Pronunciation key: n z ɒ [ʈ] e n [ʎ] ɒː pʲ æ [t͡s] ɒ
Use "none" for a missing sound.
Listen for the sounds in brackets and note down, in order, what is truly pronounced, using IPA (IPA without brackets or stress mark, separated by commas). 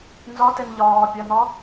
t, ʎ, n̪